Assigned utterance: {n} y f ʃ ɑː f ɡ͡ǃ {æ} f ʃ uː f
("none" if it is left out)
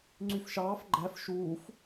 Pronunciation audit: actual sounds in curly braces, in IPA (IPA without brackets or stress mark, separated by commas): ŋ͡ǀ, æ